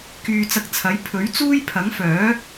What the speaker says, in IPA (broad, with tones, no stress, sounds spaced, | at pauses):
k yː˧ t͡s ɐ˧ k̚ t͡sʰ ɐ˨˥ j pʰ ɵ˨˥ ɥ t͡s uː˥ j pʰ ɐ˨˥ ŋ f œː˨˥